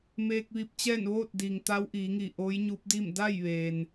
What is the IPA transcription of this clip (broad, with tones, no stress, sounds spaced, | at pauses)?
m eː˧ k̚ ʋ i˧ p̚ t͡ɕ ɛː˥˨ n ʋ oː˥˨ t̚ d iː˩ ŋ t̪ a˧˥ w ʔ iː˩˧ ŋ i˧˩ ʔ oː˧˥ j ɲ u˧˥ p̚ d i˥˨ m d a˥˨ j ʋ eː˩ n